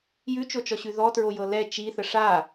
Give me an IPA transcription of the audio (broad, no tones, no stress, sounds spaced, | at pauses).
j ʉ t͡ʃ o t͡ʃ ɔ ɕ ʉ ð ɔ t ɹ o j ɤ l ɛ t͡ʃ i θ ə ʂ a